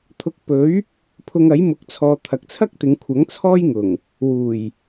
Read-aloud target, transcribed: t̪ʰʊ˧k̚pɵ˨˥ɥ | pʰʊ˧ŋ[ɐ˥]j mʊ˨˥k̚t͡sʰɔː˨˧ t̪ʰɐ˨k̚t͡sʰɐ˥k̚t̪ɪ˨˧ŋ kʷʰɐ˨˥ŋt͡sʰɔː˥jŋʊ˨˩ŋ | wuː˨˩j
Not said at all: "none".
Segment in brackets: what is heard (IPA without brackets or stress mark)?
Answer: ɐ˨˥